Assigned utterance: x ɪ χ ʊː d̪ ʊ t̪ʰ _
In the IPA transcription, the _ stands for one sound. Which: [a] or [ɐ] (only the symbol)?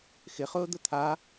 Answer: a